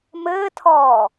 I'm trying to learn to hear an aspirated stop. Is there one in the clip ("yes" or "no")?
yes